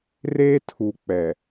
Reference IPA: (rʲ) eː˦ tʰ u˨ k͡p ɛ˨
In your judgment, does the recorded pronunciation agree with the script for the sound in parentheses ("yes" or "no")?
no